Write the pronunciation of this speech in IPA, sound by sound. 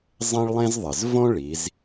zˤ ẽ˥ ɭ lˠ ẽ˥ z ðˤ ɪ˩ z v õ˥ ɭ i˩˧ z

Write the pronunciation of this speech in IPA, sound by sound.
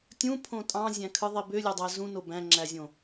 tʲ ũ pʰ õ tʼ ɑ̃ zʲ æ̃ kʰ ɯ ðˤ i b ø lʲ o dˤ æ z ũ n o b æ̃ ŋ͡ǁ æ zʲ õ

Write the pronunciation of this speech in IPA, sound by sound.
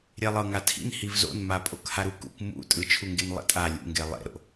ɾʲ e lˠ ɤ ŋ a tʰ ḭ n h i v z o̰ n m a pʼ o k h a ɾ u k ṵ k m ṵ tʼ ɯ t͡ʃʰ u ŋ ɡ e n lˠ ḭ tʼ a lʲ ṵ ŋ ɡ e lˠ ḛ ɾ o̰

